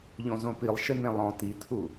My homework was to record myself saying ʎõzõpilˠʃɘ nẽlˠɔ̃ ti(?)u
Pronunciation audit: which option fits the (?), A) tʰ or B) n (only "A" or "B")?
A